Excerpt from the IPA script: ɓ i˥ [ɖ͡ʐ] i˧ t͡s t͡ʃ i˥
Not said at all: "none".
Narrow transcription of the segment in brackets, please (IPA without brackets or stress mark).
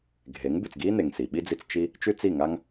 d͡z